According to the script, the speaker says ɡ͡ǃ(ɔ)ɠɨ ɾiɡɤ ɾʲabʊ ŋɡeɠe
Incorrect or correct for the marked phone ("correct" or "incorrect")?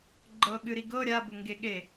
incorrect